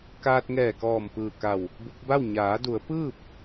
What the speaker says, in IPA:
kaː˧t̚ŋɛː˧˩kɔː˧˩m pɯː˧˩ka˧˩w | bu˧k̚ba˥˨w ɲaː˩˧du˩˧ə̯ pɯː˥˨p̚

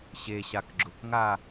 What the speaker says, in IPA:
ɕeɕak ɡ͡ǁʊkŋa

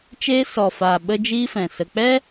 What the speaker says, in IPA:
t͡ʃeː˦ sɔ˨faː˨ ɓə˦d͡ʒiː˦fɛ̃˨sə˧ k͡pɛ˦

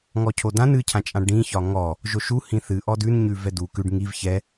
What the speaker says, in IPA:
ŋɔcʰodãn ɨcʰãt͡ʃʼã ɖĩçɒ ŋɔ | ʒoʃu hĩθɨ ʔɔdʉnɲʉ vɛdu kʉɖ ŋiv çɛ

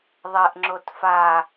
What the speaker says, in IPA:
ðˤɛʔŋ͡ǁot fa

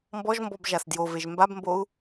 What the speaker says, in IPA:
mbɔʒmbɔb ʒasdjoveʒ mbabmbou̯

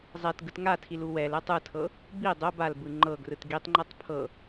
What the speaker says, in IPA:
zˤɛt ɡɯtŋatʰil uwɛlɛtˤ ɯtʰɤ | bi dˤo balbɯ ŋ͡ǃɤɡrɯt ɡitˤŋ͡ǃɛtˤ pʰɤ

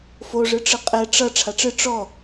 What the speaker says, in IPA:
foʐɨʈ͡ʂɨ qʼɛ ʈ͡ʂʌ ʈ͡ʂʰaʈ͡ʂɨ ʈ͡ʂɔ

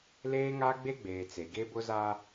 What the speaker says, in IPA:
leː˦ŋa˦ ɡ͡be˦ɡ͡beː˨ t͡se˨ɡe˦bʊ˦zaː˦

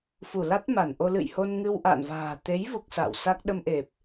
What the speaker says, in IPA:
fu˧˩la˦˥t̚ma˧˩nʔo˧ lɨ̰˧˨jho˧n ŋɨ˧wʔa̰ː˧˨nva̤ː˨˩ t̪e˨˦jvu˨˩k̚ sa̰ː˧˨w sa˦˥k̚ ɗə˧mʔe˨˩p̚

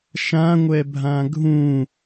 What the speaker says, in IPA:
ʃãŋʷɛbʱã ɡʱũ

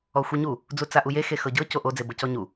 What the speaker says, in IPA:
ɔxʷiɲu | d͡zut͡saʔuje xexɤɟɤ coʔo d͡zebɤcɔɲu

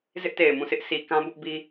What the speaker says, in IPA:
zɪ˦ʔte˨ɪ̯mũ˦˨sɪ˦ʔ sʰi˨kã˦ bʊ˦ʔbi˦

